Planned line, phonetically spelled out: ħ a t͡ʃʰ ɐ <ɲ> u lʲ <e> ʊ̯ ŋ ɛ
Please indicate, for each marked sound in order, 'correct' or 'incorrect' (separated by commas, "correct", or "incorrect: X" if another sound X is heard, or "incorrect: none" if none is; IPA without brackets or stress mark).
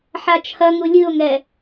incorrect: ŋ, incorrect: ɨ